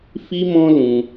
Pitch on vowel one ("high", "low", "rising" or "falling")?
high